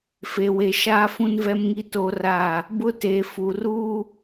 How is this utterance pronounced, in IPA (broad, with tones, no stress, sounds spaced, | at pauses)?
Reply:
f e˨ w e˨ ʃ aː˦ f ũ˦ n v ɛ˦ m ŋ i˦ t o˦ r a˦˨ | b ʊ˦ t eː˨ f u˨ r uː˦